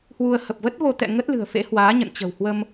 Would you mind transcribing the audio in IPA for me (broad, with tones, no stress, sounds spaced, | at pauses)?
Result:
h w u˧ ə̯ h ə˨˩ p̚ v ə˦˥ t̚ v o˧ t̪ ɛ̰˧˨ ŋ ə˦˥ t̚ l ɨ̤˨˩ ə̯ f ḛ˧˥ h w aː˨˦ ɲ ə̰˧˨ n t͡ɕ ə̤˨˩ w h w ə˧ m